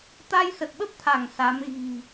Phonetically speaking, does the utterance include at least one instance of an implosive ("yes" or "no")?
yes